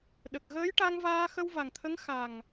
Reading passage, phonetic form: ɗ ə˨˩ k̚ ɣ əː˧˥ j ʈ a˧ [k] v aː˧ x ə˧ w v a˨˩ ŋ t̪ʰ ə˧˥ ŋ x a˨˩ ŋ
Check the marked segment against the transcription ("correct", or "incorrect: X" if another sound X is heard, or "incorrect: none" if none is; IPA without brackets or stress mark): incorrect: ŋ